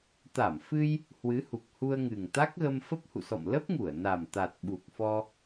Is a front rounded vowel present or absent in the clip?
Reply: absent